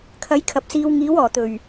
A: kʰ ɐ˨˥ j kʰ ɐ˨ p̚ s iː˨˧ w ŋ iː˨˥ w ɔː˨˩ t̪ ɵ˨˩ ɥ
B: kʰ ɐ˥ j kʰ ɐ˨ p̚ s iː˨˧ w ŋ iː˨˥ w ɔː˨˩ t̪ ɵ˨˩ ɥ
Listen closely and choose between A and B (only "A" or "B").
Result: A